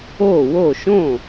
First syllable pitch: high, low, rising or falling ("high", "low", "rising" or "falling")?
falling